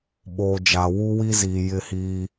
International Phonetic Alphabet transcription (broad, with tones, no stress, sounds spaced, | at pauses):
ɓ oː˨ d͡ʒ a˨ w u˦ w i˦ z iː˨ j ɪ˦˨ h iː˦